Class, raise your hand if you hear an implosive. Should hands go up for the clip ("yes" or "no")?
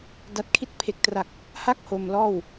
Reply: no